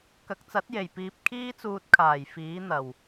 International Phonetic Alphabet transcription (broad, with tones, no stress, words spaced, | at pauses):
kɐ˨k̚t͡sɐ˨˥t̚je˨˩j piː˧p̚ kʰiː˥t͡suː˧t̚kʰaː˨˩j fiː˨˥n̪ɐ˨˩w